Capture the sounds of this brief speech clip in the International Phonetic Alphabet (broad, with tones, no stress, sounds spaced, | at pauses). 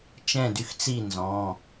t͡ʃ ɛ̃˥˨ d y˦ x t͡s i˥˨ n z ɔ̃˩˧˩